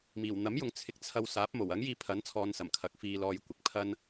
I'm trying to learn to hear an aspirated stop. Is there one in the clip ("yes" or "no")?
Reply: yes